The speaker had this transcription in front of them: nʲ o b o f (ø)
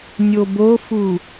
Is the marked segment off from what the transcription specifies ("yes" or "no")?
yes